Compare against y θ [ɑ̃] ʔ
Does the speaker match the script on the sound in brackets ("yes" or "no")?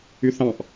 yes